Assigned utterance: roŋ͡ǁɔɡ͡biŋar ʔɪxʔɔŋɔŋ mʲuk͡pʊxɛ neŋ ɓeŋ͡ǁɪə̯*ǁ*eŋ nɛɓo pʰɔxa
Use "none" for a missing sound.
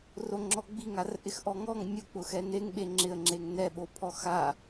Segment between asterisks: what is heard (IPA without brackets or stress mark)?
ŋ͡ǁ